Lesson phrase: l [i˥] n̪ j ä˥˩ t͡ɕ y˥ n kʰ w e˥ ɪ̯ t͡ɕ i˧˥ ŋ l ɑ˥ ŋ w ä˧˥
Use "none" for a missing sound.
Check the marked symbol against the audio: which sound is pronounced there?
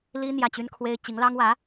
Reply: i˥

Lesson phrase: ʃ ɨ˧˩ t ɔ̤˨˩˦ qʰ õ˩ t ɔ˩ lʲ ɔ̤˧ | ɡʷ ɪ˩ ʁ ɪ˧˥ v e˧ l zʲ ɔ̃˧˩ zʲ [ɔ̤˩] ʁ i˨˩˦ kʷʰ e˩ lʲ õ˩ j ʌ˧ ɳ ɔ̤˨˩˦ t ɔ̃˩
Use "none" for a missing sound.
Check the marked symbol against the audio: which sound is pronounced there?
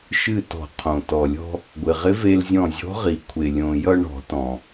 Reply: ɔ̤˧˥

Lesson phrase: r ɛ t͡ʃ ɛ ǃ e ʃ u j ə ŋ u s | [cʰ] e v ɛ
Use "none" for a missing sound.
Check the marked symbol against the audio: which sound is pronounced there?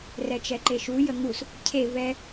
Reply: cʰ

